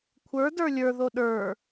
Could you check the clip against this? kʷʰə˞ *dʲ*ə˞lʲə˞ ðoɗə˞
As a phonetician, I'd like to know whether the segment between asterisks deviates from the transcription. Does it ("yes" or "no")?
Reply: yes